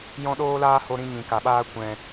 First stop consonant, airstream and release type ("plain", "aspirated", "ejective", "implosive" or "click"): implosive